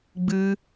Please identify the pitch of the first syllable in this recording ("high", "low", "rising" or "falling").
high